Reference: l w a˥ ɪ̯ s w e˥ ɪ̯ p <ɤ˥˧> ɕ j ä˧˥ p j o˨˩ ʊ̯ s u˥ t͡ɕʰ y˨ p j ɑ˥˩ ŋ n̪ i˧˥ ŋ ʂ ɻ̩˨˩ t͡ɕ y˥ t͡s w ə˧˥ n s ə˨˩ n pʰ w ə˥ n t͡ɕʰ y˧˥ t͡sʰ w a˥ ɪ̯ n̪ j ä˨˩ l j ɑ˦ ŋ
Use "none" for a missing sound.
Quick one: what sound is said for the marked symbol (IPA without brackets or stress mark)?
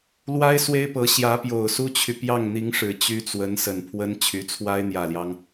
ɤ˧˥